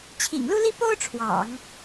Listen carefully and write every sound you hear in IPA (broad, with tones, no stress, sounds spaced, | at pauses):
t͡ɕʰ ḭ˨˩ ŋ l u˥ l i˥ p o˥ ʊ̯ ʈ͡ʂʰ w ɑ̰˨˩˦ ŋ